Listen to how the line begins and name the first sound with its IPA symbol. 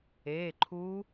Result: e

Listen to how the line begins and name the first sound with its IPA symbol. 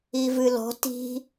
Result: i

